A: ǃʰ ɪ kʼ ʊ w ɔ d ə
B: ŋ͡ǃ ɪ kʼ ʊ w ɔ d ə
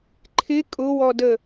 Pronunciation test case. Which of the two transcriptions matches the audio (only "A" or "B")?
A